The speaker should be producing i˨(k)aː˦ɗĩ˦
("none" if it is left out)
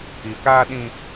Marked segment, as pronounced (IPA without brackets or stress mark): k